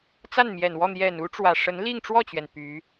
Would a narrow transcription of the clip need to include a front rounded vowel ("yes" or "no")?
yes